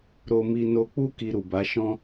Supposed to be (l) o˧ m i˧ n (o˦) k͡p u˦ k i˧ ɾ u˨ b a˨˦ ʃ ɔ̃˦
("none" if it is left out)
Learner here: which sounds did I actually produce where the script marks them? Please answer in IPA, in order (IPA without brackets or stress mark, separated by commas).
ɾ, o˧